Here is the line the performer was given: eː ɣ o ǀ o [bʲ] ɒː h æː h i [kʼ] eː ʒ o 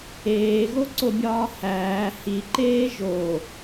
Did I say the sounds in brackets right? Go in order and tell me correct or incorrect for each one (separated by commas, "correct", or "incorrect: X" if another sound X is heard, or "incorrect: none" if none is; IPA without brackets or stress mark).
correct, incorrect: ǃ